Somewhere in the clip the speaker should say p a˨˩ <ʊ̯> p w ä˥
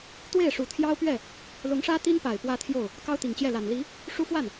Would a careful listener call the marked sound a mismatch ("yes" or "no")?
yes